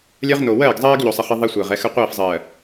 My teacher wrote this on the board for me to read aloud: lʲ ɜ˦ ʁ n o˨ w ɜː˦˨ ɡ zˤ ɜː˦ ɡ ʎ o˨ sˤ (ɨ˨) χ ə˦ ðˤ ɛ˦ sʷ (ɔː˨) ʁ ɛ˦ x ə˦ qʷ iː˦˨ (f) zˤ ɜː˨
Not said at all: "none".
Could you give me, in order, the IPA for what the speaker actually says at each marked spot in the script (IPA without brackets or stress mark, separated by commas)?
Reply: ə˨, əː˨, f